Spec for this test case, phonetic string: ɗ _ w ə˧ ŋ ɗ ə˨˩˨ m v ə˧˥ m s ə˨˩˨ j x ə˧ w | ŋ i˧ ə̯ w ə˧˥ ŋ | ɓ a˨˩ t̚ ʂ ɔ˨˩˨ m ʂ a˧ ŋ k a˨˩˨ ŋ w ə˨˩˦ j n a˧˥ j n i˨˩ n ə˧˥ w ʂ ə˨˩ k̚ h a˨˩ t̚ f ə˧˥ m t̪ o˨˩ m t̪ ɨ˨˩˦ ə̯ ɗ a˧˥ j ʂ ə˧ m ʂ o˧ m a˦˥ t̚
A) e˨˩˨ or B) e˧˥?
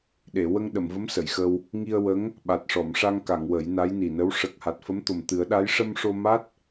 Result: A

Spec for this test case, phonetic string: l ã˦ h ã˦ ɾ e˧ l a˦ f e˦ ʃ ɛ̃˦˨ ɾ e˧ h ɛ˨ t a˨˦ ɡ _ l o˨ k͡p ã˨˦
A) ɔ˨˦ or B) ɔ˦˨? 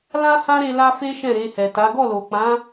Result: B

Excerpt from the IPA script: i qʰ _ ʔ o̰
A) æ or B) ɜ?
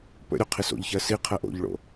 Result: B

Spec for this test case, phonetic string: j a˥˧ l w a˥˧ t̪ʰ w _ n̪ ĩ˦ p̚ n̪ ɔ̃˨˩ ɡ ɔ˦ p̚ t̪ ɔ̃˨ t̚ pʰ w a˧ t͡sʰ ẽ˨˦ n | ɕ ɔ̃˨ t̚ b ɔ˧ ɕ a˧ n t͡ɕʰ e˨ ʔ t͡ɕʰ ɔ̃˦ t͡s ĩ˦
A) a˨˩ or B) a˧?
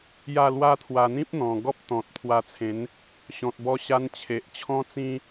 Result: B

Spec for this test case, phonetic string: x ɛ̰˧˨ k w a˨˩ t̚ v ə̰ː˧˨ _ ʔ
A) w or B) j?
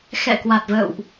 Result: A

